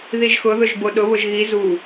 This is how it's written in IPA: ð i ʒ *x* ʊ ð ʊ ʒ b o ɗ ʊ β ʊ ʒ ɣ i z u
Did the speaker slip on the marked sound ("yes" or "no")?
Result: no